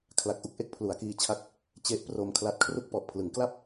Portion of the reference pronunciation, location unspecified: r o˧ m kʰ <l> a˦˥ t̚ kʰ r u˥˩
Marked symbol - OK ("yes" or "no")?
yes